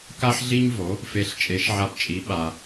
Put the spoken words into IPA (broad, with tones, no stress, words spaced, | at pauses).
ka˥ħɮi˥ɲvo˨˥ | fe˨˥ɬt͡ʃʼe˨˥ʃʕa˧pt͡ʃʼi˨˥ ɓa˧